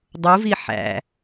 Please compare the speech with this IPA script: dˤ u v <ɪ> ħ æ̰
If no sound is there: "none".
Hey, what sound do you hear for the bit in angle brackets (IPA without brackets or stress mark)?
i